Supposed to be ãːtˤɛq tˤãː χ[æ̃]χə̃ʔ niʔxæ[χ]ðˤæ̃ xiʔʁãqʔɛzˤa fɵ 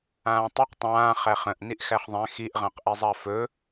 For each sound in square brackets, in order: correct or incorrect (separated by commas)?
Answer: incorrect, correct